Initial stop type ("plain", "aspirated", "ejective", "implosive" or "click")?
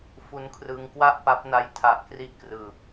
aspirated